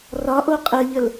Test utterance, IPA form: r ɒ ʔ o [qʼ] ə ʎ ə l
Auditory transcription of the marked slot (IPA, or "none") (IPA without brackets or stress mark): qʼ